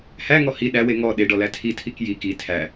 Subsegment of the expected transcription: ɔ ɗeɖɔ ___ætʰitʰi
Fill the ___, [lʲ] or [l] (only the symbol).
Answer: l